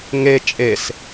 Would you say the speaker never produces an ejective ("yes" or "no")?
no